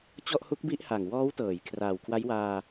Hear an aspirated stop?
yes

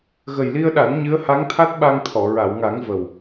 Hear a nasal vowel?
no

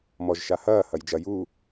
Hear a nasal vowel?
no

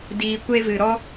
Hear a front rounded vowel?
no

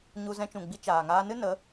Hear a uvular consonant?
no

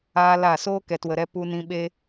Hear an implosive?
yes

